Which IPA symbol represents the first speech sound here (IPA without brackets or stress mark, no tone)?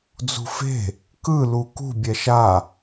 d͡z